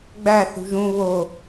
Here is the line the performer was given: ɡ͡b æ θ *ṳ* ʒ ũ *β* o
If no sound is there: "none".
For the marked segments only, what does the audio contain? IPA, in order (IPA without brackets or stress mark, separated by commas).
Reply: ṳ, β